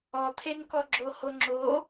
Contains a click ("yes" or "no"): yes